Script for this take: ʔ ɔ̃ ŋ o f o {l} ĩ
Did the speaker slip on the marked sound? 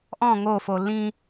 no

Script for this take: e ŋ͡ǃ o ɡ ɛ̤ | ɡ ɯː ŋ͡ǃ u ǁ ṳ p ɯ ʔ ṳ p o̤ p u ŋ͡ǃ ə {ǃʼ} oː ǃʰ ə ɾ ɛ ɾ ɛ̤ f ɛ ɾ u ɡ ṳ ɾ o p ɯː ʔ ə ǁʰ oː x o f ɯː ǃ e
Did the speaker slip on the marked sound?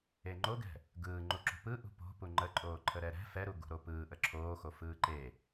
no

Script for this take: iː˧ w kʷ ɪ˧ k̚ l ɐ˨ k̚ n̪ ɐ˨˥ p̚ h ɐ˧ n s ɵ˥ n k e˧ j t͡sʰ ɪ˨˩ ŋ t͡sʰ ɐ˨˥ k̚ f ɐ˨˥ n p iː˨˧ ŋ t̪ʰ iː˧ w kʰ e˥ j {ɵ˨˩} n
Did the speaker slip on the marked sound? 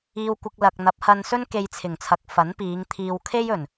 no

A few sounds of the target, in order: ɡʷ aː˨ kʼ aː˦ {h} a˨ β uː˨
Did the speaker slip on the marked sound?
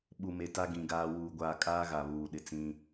yes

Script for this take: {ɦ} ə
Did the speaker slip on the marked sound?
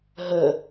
no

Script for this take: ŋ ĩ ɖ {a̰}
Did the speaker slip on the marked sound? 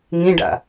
no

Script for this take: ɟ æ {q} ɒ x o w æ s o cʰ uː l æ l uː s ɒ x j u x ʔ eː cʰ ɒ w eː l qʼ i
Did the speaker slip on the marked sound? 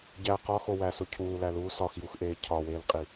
no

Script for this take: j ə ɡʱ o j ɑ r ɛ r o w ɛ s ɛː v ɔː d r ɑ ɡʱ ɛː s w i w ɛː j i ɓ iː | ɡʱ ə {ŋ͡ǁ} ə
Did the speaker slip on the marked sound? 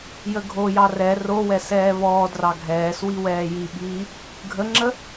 no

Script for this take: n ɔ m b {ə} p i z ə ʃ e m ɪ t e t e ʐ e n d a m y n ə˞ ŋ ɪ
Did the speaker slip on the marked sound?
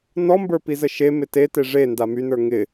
yes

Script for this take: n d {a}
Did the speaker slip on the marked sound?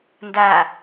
no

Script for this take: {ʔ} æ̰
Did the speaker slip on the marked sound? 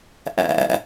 no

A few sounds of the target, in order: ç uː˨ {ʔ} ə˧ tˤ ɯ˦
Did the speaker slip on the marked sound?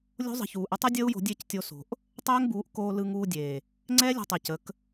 no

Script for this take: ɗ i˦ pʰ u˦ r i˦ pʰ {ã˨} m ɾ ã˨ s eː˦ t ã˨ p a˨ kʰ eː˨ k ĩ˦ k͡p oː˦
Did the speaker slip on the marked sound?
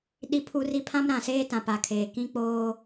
yes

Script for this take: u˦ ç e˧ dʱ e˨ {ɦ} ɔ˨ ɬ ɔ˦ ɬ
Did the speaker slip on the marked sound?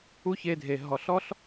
no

